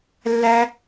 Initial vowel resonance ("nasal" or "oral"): oral